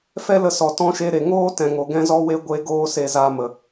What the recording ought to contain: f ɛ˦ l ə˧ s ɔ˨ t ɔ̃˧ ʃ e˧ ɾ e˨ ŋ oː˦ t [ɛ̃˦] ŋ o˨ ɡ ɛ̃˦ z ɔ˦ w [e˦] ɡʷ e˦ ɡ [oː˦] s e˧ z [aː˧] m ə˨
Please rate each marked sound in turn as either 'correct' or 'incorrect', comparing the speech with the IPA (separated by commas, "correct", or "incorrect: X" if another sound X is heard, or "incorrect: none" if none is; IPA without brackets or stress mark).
incorrect: ɛ̃˨, correct, correct, correct